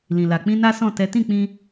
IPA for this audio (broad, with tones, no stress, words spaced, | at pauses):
lĩ˨la˨ k͡pĩ˧ na˦sɔ̃˦˨tɛ˨˦ tĩ˦˨k͡pĩ˧